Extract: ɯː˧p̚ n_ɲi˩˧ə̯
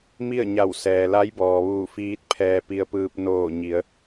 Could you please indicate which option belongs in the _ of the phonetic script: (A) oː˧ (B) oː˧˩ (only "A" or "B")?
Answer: B